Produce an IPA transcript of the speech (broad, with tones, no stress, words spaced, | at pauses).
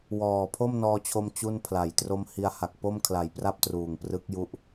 wɔː˨˩pʰo˥˩mnɔː˧t͡ɕʰo˧m t͡ɕu˥˩npʰla˨˩j tro˧m hi˧a̯ha˨˩k̚ po˥˩m kʰla˨˩jpra˥˩p̚ truː˨˩ŋprɯ˦˥k̚ ju˦˥ʔ